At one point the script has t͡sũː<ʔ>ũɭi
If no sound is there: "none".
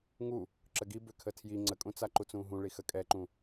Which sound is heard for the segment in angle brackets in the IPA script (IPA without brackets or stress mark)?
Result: ɦ